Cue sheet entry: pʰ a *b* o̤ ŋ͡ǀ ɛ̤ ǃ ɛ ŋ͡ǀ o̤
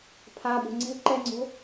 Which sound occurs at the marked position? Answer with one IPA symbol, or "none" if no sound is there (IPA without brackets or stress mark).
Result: b